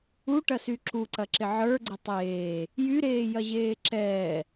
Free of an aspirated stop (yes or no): yes